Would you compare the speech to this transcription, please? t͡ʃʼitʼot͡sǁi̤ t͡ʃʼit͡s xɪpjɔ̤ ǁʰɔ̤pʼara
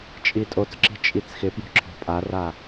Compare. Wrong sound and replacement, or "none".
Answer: none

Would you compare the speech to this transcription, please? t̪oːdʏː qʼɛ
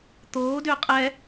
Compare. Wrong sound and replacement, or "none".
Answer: none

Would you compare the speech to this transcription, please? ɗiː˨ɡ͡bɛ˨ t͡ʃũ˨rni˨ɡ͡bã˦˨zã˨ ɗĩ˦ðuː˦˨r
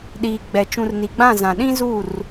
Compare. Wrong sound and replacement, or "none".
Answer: ð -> z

